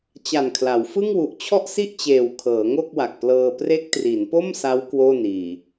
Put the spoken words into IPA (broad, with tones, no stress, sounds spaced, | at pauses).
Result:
t͡ɕ a˨˩ n kʰ l a˩˦ w f ɯ˥˩ ŋ w u˨˩ ʔ t͡ɕʰ ɔ˥˩ ʔ s i˥˩ ʔ t͡ɕ eː˨˩ w kʰ ɤː˩˦ ŋ o˥˩ k̚ w a˨˩ k̚ p l ɤː˧ p r e˦˥ k̚ t r i˩˦ n p o˥˩ m s a˦˥ w k w oː˥˩ n iː˨˩